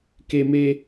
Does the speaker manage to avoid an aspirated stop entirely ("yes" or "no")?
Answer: yes